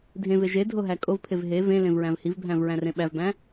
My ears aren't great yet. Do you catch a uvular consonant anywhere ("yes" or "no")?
no